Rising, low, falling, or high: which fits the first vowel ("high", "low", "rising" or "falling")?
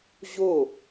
falling